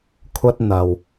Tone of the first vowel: high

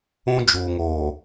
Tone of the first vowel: high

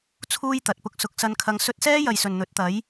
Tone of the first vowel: high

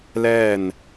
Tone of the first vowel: falling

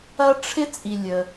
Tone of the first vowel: high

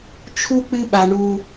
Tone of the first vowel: high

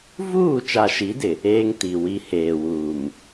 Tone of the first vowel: falling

